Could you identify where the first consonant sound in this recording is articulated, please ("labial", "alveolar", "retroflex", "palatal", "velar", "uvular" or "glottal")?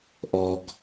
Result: glottal